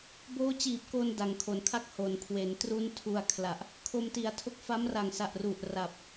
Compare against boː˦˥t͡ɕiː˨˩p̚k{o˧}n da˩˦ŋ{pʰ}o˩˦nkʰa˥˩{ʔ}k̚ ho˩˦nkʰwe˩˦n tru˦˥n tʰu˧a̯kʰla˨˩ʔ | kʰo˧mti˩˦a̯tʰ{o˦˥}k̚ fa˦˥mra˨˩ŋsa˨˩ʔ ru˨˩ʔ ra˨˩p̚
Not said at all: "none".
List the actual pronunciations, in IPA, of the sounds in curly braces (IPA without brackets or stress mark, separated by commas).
o˧, kʰ, none, o˥˩